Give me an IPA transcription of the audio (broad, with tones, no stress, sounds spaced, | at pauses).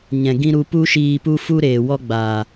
ɲ ɛ̃˨ ɡ ĩ˦ ɾ u˧ p u˦ ʃ iː˧ p u˦ f u˦ ɾ eː˨ w ɔ˦ ɡ͡b aː˨